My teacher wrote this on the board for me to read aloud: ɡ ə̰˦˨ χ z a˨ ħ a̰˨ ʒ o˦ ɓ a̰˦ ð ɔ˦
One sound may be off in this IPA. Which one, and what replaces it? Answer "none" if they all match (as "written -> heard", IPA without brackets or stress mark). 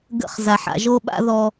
none